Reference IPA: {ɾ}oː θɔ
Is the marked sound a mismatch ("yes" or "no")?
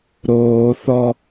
no